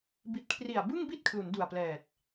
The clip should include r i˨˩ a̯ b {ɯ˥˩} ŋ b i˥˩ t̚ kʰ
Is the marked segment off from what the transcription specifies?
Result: no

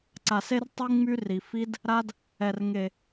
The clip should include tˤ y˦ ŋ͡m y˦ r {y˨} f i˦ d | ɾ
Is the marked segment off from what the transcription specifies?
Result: yes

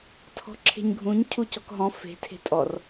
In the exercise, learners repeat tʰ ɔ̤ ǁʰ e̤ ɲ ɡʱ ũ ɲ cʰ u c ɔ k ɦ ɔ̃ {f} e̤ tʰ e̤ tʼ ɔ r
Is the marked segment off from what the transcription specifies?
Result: no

